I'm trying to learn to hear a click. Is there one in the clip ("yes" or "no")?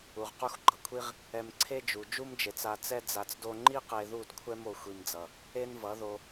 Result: yes